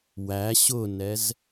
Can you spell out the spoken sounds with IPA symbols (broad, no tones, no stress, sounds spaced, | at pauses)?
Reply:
w æ ɕ ʊ n ɛ z